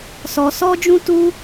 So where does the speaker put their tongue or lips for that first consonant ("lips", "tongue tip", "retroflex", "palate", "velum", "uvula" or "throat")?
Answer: tongue tip